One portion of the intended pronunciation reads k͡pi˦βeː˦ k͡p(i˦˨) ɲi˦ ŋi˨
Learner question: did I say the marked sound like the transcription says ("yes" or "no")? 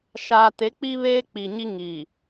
no